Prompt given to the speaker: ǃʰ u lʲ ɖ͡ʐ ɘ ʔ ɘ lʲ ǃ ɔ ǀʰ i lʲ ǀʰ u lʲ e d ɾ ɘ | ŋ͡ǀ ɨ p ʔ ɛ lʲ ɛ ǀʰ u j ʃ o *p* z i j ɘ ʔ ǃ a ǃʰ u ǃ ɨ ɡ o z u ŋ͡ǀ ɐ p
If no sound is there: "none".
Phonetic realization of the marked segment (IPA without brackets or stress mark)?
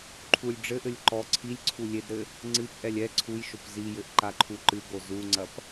p